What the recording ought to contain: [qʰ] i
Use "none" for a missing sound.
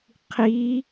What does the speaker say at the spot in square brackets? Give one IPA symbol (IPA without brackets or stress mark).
qʰ